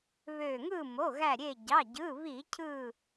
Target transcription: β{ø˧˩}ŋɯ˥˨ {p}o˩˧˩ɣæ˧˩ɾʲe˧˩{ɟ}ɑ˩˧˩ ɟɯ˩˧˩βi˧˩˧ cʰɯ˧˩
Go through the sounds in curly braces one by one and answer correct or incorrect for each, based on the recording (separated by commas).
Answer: correct, incorrect, correct